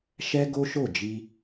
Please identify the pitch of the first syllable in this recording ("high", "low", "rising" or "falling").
high